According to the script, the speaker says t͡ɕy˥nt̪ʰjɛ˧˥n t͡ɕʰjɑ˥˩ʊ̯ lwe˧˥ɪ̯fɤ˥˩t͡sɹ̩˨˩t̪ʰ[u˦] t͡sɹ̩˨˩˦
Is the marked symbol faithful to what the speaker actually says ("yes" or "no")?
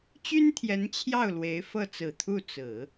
no